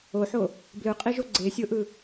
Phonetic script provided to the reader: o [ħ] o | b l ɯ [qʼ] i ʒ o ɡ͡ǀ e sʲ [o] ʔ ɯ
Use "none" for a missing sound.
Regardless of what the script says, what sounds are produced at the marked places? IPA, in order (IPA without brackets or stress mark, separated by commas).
ħ, qʼ, o